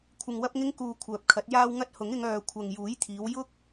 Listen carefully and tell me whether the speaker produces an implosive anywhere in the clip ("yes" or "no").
no